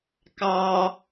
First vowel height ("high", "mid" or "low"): low